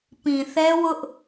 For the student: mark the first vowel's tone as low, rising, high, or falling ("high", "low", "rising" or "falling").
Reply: low